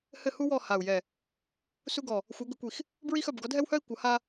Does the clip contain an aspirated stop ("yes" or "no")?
no